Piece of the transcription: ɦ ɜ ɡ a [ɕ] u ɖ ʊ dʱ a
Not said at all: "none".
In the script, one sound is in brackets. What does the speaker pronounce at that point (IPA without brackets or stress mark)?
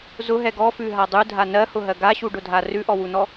ɕ